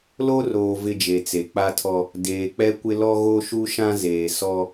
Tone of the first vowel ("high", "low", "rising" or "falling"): high